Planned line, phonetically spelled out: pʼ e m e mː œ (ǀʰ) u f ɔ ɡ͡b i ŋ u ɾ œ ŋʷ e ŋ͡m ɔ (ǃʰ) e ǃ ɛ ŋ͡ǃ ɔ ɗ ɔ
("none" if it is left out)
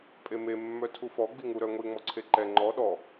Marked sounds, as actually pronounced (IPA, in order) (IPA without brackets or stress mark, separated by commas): tʰ, ǀʰ